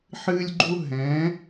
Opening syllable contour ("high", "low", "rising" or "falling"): high